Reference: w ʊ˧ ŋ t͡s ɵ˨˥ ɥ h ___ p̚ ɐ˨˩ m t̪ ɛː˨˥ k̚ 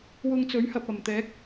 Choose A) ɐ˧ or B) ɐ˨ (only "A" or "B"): B